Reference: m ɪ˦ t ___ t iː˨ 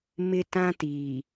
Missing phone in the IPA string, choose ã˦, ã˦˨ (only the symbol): ã˦